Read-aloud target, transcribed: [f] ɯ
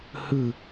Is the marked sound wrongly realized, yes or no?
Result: yes